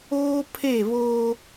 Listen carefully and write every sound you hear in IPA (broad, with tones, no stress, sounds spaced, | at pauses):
oː˦ pʰ e˦˨ β oː˦